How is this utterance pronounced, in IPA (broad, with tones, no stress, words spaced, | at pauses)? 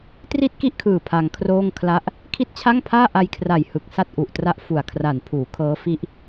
tri˥˩t̚ki˥˩ʔkʰɯː˨˩ pʰa˧ŋkʰroː˥˩ŋkʰla˥˩ʔ | kʰi˥˩t̚t͡ɕʰa˥˩ŋpʰaː˥˩ ʔa˧jkʰra˨˩j hɯ˨˩k̚sa˥˩t̚ʔu˨˩ʔtra˦˥ʔ fu˨˩a̯kʰra˨˩npʰuː˩˦kʰɤː˦˥ fi˦˥ʔ